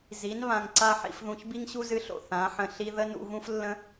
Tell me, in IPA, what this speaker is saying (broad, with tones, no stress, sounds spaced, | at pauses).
z i˨˦ n β ã˧ ŋ ǀ a˦ ħ ḭ˧ f ð ũ˧ ç b i˦ ŋ ɕ u˦ z ɨ˧ ɬ o̰˨ θ ã˨˦ ħ ə̃˧ ɬ i˦ ð ə˦ n ṵ˧ ɣ ũ˦ f lː ə̃˦